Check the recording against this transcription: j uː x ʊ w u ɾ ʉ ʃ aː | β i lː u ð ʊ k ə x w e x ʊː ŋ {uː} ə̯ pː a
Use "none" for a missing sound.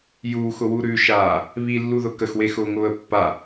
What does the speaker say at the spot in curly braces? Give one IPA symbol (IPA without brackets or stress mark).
ʊː